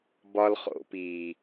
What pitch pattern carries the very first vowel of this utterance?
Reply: high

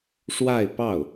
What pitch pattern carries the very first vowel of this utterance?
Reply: falling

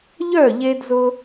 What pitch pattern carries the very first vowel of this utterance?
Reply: falling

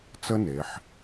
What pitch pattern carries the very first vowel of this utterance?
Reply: high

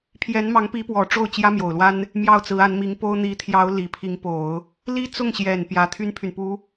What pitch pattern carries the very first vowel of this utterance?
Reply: rising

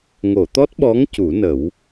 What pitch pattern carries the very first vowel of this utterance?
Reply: low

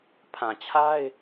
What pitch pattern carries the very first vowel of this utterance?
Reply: low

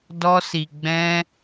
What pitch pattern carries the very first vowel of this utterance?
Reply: high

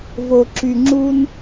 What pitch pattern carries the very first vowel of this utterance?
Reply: low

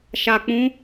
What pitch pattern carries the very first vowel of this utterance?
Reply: low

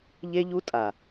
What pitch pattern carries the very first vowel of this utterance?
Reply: high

